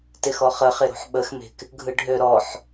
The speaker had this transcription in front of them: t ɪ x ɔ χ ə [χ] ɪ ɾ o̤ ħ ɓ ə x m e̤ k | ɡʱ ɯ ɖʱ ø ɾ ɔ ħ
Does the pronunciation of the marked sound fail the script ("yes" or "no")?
no